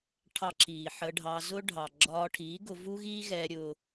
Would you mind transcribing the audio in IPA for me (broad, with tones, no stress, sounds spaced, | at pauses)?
ʈʰ ɑ˧ ǁ iː˨ ħ ə˧ ɖʱ ɑ˧ z ʊ˦ ɖʱ ɑ˨ ɡ͡ǁ ɒː˧ ʈʰ iː˨˦ ɡ ʊ˧ v u˦ ɣ iː˦ ɣ ɛː˧ ɾʲ ʊ˧